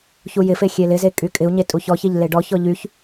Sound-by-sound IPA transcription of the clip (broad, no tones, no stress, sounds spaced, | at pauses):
ç u j ɪ f e xʲ e l ɪ z e kʼ y kʼ ɪ u̯ ɲ e tʼ u ç ɔ ç e ʎ l e ɖ ɔ ç ɔ ʎ y ç